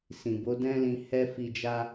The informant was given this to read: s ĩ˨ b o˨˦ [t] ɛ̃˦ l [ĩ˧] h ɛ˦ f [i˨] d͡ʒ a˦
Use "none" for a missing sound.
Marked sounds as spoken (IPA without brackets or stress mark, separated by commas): d, ĩ˧, i˧